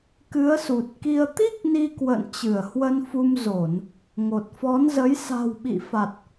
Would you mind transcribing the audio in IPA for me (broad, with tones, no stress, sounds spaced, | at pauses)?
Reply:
k ɨ˨˦ ə̯ s u˨˩ t̚ k i˧ ə̯ t̪ i˦˥ k̚ n i˧ k w ə̰˧˨ n t͡ɕ ɨ˧˩ ə̯ h w ə˧ n f u˧ m z o˧˩˨ n | ŋ o˨˩ t̚ f ɔ˨˦ n z ə˨˦ j s a̤˨˩ w ɓ ḭ˧˨ f a˨˩ t̚